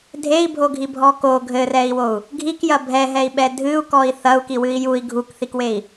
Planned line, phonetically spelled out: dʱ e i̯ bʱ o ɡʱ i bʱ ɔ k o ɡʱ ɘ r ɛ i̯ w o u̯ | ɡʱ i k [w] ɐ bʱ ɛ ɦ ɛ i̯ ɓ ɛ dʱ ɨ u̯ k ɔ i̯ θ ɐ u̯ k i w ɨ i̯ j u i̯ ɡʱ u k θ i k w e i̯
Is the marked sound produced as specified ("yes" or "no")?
no